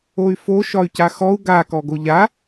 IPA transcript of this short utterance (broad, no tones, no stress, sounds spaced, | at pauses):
o y̯ f o ʃ ɒ y̯ c a x ɔ u̯ ɡ a k ɔ ɡ o ʎ a